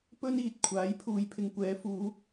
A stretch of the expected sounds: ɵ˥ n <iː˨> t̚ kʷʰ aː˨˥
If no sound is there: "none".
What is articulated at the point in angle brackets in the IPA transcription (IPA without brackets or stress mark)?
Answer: iː˨